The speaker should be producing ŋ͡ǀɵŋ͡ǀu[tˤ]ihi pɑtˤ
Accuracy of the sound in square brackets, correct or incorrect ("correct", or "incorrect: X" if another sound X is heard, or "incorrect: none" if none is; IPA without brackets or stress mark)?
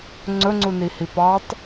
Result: incorrect: n